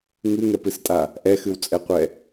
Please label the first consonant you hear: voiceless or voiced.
voiced